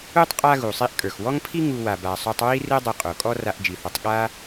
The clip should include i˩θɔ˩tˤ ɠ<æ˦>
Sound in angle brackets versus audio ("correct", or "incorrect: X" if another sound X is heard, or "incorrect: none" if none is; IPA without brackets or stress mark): incorrect: a˦